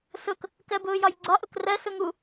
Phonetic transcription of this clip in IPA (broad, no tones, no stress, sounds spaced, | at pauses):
s ʊ k | k ɜ b ʊː j ɒ j ɡ͡ǀ ɒ ʔ ʊ k r ɜ s ʊ ŋ u